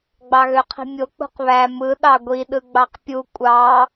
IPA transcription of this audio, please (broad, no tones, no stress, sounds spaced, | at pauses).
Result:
ɡ͡b ɑ ɣ ø qʰ i̤ mʲ o k͡p ṳ q β æ m ɯ ɗ ɑ ɡʷ i ɗ ɯ ɡ͡b ɑ q pʲ u kʷʼ ɑ